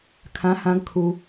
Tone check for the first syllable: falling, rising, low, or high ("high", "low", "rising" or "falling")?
rising